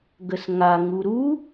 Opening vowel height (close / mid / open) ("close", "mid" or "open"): mid